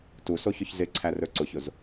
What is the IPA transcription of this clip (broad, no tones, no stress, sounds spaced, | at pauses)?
t u s o ç ʊ ç z ɪ ǀʰ æ r ɵ ǀ ʊ ç ʊ z